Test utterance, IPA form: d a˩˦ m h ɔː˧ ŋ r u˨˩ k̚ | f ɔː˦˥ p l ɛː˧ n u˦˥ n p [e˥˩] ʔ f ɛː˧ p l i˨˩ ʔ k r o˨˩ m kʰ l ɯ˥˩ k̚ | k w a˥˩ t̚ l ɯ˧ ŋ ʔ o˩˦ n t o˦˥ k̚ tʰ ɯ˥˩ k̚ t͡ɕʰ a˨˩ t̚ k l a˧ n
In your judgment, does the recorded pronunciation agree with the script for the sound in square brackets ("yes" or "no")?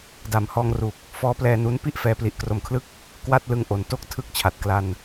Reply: no